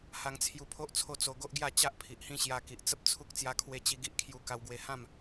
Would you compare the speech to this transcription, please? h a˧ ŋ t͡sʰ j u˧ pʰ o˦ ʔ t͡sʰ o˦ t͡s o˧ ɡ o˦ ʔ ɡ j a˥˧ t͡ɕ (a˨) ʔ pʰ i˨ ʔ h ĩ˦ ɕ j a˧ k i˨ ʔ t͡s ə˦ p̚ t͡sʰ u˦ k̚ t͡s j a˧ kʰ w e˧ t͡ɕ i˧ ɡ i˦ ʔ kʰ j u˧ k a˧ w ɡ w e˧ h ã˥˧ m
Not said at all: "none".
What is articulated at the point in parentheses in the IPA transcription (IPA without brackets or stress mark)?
a˦